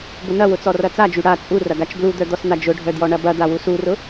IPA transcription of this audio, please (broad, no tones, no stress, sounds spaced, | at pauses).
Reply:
b ʊ n ɐ w ʊ t͡s ɔ r ɐ t͡s a d͡ʒ y ɽ a t͡sʼ u r ɐ ɡ a t͡ʃ b l u d̪ œ d̪ ɔ s n̪ a d͡ʒ ʊ ɖʱ œ d j ɔ ɳ ɐ b ɐ d̪ a w u s u r ʊ